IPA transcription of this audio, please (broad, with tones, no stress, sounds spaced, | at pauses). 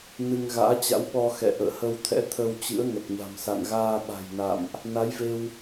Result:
n ɨ˧ ŋ ɣ a̰ː˧˥ t͡ɕ a̰˧˥ w ɓ ɔ˧ x ɛ̰˧˨ ʔ ə̰ː˧˨ h ə˧ w t̪ʰ ɛ̰˧˥ t̪ʰ ə˧ w t͡ɕ ɨ̰˧˥ ə̯ ŋ ə˨˩ t̚ ɲ a̤˨˩ m s a̰˧˨ n ɣ aː˧ ɓ a̤˨˩ j n a̰˧˨ m ʔ | n a˨˦ j v e˧ w